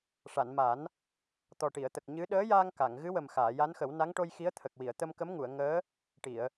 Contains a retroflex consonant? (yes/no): yes